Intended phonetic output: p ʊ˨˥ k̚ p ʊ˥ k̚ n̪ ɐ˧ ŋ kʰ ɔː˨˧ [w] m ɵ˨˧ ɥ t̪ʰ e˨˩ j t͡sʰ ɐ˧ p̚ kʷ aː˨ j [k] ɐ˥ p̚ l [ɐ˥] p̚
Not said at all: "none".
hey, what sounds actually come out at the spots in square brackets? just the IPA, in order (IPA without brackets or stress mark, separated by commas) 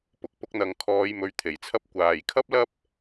j, kʰ, ɐ˥